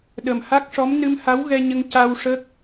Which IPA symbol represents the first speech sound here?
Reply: ɗ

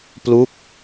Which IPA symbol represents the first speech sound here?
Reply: p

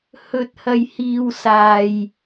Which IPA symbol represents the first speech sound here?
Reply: h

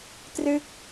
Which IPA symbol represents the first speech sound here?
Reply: t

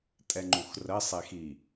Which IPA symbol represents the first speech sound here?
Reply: tʼ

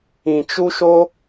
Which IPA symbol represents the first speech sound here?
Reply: ĩ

